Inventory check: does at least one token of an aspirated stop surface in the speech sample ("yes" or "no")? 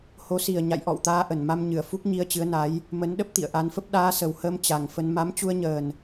no